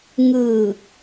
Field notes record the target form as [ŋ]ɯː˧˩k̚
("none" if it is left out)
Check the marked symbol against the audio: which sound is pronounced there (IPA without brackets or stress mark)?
ŋ